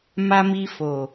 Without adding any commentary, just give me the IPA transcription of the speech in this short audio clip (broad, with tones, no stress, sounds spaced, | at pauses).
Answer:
m a˧ m i˧ f o˨